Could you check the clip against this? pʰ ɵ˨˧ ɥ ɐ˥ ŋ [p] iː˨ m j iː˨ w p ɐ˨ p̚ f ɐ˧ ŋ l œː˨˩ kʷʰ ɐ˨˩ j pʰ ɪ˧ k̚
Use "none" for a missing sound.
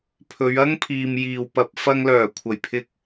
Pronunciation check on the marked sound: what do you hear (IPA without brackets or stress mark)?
pʰ